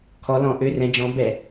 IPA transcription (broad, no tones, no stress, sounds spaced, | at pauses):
kʰ ɔ l ɔ̃ ʔ ø r ɛ̃ d͡ʒ ɔ̃ b ɛ